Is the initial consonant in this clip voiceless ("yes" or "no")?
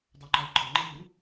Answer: no